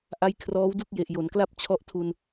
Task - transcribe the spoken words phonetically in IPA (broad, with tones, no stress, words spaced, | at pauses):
ʔa˦˥jkʰrɔː˦˥wdu˥˩k̚ je˨˩ʔjo˩˦nkla˥˩p̚ t͡ɕʰɔ˦˥ʔtʰu˧n